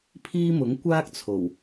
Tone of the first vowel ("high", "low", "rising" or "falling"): high